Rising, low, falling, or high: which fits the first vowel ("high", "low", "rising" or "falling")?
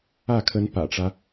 falling